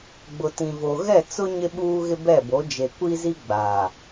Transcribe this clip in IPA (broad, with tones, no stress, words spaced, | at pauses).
ɡ͡bʊ˨tĩ˨vo˨ ɣɛ˦˨t͡sʊ˦ ɲɪ˦ɓuː˦ɣɪ˦ bɛ˦˨bo˨˦ d͡ʒe˨kʷi˦zi˦ ɡ͡baː˨